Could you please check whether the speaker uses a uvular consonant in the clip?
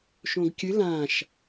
no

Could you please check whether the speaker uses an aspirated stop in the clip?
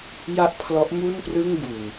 yes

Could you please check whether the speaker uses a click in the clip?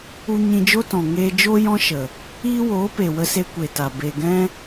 no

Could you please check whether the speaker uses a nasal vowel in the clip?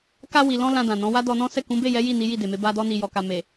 yes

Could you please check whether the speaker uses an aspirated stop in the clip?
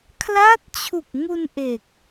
yes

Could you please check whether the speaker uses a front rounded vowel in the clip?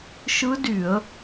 yes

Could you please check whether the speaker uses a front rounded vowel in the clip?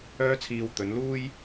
yes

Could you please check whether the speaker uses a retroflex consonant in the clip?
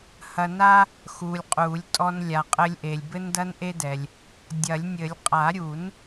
no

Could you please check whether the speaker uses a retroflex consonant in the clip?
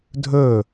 no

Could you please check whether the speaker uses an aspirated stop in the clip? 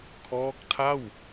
yes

